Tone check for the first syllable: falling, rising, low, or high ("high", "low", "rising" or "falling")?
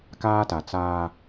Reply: high